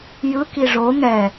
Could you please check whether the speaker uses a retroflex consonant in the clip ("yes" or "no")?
yes